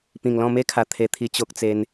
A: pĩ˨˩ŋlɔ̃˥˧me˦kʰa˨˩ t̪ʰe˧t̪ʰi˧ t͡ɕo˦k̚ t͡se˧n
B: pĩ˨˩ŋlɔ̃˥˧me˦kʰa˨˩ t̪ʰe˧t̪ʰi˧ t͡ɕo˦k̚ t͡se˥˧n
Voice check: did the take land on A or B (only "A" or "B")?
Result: A